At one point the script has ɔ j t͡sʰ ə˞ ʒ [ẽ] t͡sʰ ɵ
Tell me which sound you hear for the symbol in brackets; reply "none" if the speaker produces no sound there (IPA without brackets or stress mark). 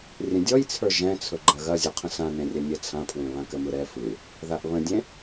ɛ̃